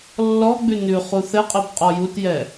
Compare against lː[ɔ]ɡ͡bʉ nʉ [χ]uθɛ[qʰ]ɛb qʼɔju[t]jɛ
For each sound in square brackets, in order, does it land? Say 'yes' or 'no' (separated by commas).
yes, yes, no, yes